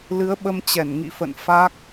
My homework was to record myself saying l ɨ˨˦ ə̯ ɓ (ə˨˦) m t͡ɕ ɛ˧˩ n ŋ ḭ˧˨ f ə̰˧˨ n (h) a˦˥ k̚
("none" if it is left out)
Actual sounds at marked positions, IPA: ə˧, f

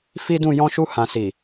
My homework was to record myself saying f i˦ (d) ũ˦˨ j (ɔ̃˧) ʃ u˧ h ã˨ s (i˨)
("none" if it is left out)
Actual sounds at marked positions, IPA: d, ɔ̃˧, i˨

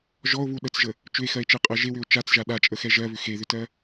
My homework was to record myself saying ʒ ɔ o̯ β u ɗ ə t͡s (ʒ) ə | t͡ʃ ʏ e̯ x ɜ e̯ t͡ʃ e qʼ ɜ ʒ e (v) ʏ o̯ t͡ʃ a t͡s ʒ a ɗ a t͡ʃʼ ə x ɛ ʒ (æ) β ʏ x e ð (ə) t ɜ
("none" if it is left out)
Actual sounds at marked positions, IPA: ʒ, w, ɜ, ʏ

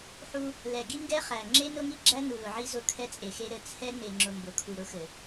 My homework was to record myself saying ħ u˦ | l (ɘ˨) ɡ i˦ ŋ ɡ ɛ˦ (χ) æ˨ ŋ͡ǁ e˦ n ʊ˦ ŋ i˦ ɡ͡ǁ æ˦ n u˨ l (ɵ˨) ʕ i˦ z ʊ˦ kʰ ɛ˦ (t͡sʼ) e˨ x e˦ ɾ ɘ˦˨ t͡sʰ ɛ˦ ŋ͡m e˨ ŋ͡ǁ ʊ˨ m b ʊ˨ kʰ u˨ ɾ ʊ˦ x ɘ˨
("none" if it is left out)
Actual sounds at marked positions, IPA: ɛ˨, χ, ʊ˨, t͡sʼ

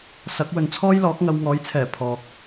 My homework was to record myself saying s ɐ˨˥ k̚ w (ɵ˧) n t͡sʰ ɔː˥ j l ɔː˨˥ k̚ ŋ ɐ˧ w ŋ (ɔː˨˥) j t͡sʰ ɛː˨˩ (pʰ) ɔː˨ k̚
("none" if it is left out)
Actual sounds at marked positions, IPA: ɵ˨, ɔː˨˥, pʰ

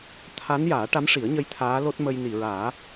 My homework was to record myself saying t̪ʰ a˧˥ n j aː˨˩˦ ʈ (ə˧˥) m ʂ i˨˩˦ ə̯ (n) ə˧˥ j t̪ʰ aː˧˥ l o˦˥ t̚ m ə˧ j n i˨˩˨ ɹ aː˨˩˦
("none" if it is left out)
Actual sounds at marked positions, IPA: a˧˥, ɲ

